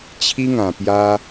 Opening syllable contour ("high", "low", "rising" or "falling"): high